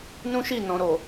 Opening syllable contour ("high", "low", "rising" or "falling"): high